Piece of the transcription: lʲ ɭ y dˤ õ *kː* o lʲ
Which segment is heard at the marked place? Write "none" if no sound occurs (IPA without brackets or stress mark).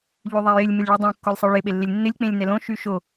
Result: kː